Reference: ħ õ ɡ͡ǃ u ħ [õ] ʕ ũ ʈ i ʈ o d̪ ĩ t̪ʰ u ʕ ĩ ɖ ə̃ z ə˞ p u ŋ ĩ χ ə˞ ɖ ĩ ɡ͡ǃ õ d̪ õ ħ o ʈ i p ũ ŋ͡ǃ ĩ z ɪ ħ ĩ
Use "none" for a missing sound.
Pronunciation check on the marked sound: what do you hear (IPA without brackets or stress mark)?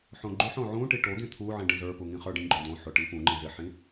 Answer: õ